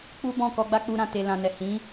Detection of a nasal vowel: present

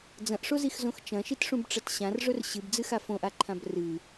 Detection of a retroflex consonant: present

